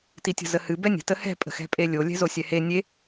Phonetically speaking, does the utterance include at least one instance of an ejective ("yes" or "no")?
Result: yes